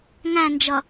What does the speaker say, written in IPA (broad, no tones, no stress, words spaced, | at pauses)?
ŋæ̃nd͡ʒʌ